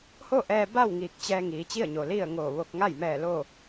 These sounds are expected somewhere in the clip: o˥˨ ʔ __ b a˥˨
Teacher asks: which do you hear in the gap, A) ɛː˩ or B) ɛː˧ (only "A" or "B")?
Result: B